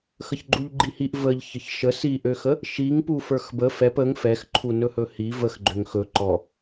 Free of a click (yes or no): no